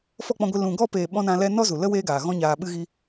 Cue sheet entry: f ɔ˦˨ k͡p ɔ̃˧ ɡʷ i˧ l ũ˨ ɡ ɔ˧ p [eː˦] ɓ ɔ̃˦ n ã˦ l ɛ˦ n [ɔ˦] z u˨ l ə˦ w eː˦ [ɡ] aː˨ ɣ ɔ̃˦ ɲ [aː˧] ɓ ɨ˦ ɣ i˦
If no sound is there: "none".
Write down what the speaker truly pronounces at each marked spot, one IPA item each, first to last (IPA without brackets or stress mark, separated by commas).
eː˨, ɔ˦, ɡ, aː˧